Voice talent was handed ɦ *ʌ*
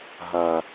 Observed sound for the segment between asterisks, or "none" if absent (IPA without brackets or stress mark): ʌ